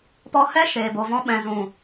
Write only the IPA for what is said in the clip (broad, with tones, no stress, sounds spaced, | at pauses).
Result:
p ɔ˦ h ɛ˦ ʃ eː˨ b o˨ v ɔ̃˧ ɓ ɛ̃˨ z ũ˨